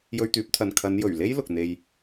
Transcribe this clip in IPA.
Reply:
j ɵ˧ ɥ t̪ yː˨˥ p̚ t̪ʰ ɐ˨ n kʰ ɐ˨˧ n j ɵ˨˩ ɥ l e˥ j l ʊ˨ k̚ n̪ e˧ j

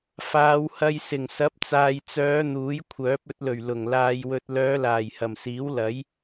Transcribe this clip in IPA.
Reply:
f aː˨˧ w h ɐ˧ j s ɪ˨˩ ŋ s ɐ˨˥ p̚ t͡s aː˨ j t͡s œː˨˧ n̪ uː˨˥ j kʷʰ œː˨˥ p̚ ɵ˧ t̚ l ɵ˨˩ ɥ l ʊ˨˩ ŋ l aː˧ j w ɵ˧ t̚ l œː˨˧ l aː˨˩ j h ɐ˨˩ m s iː˨˥ w l ɐ˨˥ j

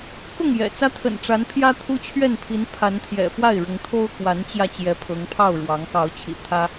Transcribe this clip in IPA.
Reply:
k ʊ˥˨ ŋ j ɛ̰˨˩ t͡s ä˦ t̪ʰ ə̰˨˩ n ʈ͡ʂ a˨˦ n pʰ j ä˦ t̪ʰ u˦ t͡ɕʰ ɥ ɛ˥˨ n pʰ i˨˦ n pʰ a˨˦ n t̪ʰ j ɛ̰˨˩ f w a˥˨ ɪ̯ ɻ ʊ˨˦ ŋ t̪ʰ o˦ ʊ̯ k w a˨˦ n t͡ɕ j ä˧ t͡ɕ j ɛ˨˦ pʰ ɤ˨˦ ŋ pʰ ɑ˥˨ ʊ̯ ɻ w ɑ˨˦ ŋ k ɑ˨˦ ʊ̯ t͡ɕʰ ḭ˨˩ t̪ʰ ä˦

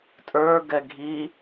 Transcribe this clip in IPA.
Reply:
tʼ ə˞ ɡ ɛ ɡʱ i

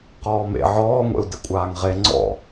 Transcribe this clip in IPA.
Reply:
q ɔː m ḛ ʕ ɔː ŋʷ ḛ u̯ d ɘ kʷʼ aː ŋ ʁ e ŋ͡ǀ ɔ̰

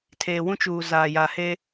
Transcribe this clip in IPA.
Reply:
tʰ eː˨ w ũ˦ t͡ʃ uː˨ z aː˨ j a˨ h e˦

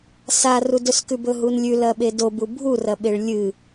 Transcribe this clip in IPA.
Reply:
s a r u d ɵ s k ʉ b ɵ ɦ u n lʲ ʉ l ɐ ɓ e d o b u bʱ u r ɐ ɓ e ɭ lʲ ɨ

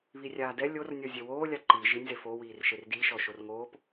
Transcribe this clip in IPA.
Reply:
β i rʲ aː d ɛ lʲ o r nʲ ɔ zʲ e w oː lʲ a ǃ i ʒ i nʲ z e f o w iː r ʃ e r d i ʃ ɔ ʃ o r ŋ oː p

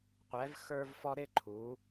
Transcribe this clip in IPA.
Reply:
qʷ ɛ˩˧ v x ə˞˧ v f ɔ˧ ɾ ɪ˥˧ ǃʰ u˩˧

